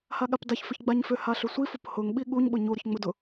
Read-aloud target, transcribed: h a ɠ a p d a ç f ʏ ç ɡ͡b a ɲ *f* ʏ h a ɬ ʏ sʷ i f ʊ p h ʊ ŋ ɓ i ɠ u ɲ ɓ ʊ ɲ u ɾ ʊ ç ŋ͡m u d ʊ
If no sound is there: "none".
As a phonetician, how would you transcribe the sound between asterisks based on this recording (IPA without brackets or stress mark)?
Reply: f